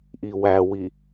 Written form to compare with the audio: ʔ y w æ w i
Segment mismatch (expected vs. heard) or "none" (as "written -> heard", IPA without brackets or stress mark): y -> i